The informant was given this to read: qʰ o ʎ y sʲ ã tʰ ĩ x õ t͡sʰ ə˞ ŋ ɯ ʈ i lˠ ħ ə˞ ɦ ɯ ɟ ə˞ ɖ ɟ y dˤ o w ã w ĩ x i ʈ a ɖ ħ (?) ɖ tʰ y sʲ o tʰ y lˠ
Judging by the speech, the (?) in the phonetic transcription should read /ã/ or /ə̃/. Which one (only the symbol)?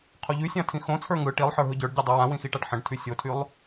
ə̃